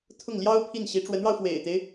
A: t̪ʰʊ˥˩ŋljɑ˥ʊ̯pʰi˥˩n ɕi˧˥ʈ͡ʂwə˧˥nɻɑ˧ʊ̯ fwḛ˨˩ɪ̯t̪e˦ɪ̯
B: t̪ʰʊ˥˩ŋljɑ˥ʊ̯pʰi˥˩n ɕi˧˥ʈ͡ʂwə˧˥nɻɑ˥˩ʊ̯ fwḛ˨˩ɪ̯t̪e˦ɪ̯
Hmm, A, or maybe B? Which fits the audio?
A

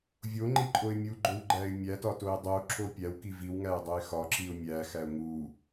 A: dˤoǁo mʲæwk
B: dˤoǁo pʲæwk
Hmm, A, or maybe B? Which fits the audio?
B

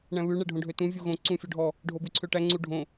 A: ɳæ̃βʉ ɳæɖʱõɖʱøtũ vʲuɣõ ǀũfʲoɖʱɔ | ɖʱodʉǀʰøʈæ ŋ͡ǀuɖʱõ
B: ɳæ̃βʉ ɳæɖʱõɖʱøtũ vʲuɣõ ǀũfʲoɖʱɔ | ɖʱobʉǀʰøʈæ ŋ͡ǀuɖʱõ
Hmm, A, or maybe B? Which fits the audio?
B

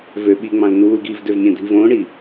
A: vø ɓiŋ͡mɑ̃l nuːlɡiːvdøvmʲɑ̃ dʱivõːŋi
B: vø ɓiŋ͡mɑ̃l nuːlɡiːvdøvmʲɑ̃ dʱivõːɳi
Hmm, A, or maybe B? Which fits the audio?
B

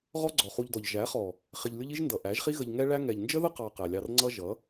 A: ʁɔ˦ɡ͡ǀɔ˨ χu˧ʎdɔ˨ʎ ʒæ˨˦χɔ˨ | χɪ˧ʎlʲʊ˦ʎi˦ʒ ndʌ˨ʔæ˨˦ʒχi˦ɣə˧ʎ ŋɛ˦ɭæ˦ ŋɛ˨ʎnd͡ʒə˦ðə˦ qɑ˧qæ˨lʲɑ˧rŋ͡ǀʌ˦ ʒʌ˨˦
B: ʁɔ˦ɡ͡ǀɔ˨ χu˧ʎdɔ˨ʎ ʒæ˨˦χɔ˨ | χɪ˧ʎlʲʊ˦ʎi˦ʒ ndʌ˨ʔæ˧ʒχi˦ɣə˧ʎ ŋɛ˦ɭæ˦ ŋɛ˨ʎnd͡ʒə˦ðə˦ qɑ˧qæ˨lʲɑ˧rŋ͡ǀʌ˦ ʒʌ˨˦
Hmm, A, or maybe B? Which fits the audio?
A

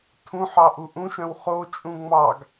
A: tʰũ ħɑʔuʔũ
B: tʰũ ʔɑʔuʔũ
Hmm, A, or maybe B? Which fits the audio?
A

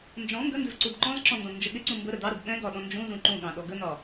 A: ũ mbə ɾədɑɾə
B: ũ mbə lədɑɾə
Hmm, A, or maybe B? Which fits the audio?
A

